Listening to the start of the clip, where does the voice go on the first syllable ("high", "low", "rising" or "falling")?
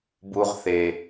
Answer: high